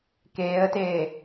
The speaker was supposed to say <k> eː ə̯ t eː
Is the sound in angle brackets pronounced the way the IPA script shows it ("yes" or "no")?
yes